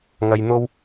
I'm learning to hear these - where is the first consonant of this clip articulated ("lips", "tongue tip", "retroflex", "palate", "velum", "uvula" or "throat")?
velum